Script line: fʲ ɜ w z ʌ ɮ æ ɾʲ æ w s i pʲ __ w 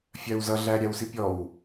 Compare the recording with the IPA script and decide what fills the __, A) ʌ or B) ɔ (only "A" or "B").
B